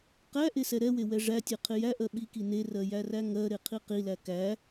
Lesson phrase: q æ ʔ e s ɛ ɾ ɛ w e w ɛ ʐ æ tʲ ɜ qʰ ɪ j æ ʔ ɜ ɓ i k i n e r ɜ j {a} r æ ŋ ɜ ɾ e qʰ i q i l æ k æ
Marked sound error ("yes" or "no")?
yes